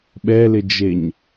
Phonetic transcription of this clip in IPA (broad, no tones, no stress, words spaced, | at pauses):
ɓɛlɪd͡ʒeɲ